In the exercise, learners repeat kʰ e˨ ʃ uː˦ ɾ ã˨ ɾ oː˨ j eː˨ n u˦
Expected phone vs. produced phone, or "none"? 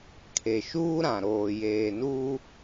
none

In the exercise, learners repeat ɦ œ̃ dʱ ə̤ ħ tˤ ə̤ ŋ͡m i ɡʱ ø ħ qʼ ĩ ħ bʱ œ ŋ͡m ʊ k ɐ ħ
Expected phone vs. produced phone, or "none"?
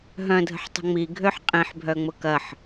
none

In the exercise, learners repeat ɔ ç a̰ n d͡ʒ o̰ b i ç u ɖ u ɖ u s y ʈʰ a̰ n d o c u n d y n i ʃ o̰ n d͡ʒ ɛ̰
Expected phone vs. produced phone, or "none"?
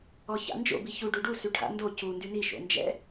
none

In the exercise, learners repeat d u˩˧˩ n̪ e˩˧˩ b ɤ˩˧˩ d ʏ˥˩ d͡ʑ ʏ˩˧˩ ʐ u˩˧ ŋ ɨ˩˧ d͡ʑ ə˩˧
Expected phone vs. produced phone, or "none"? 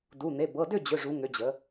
ɨ˩˧ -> ʏ˩˧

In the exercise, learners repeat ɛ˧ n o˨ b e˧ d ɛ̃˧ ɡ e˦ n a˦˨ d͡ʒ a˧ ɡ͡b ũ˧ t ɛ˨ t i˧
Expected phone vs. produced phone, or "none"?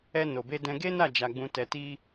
none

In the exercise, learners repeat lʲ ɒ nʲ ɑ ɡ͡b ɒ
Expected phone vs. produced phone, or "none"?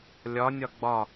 ɑ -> ɒ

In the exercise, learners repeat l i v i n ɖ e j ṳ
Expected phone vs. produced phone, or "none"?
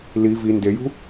ɖ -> d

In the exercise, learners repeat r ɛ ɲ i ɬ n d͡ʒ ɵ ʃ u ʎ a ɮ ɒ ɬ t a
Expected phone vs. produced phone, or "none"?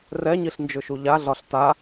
none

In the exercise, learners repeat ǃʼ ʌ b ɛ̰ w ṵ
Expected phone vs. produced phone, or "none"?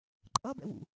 none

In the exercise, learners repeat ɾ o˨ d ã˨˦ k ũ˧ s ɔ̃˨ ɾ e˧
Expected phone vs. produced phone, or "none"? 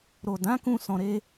none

